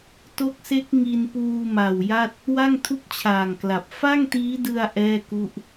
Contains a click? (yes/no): no